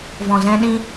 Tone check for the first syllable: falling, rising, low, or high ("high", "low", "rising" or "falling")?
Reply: low